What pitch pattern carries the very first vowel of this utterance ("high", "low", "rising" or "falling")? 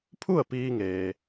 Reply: falling